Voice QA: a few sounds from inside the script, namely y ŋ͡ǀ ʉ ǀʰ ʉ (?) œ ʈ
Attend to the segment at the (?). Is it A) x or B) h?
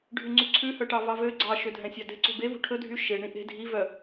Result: B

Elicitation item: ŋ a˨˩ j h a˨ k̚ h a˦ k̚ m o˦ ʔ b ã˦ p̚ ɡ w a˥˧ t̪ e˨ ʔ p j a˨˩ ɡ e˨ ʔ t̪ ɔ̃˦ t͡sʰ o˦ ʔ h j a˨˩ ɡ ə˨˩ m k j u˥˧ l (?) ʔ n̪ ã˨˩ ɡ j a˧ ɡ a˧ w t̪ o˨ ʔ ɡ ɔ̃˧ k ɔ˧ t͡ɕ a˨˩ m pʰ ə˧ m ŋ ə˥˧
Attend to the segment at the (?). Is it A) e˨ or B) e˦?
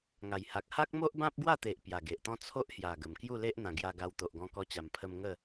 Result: B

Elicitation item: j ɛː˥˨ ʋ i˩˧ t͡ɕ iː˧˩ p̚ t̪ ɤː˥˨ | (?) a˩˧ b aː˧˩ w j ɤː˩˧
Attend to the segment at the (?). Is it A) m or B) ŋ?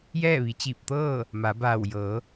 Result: A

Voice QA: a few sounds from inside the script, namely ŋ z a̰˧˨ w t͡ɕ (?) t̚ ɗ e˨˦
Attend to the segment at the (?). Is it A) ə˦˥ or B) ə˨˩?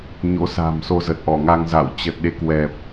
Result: B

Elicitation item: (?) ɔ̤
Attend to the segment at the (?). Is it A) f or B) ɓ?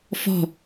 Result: A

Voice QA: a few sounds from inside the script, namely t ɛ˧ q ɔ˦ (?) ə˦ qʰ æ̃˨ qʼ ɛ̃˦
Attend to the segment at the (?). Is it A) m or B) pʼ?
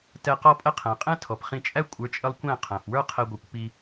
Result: B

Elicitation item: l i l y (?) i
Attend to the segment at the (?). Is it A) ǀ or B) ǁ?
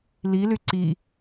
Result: A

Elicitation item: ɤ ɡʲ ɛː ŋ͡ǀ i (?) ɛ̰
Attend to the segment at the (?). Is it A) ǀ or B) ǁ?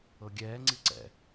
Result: A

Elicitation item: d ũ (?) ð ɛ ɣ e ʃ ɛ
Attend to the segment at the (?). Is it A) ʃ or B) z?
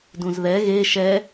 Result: B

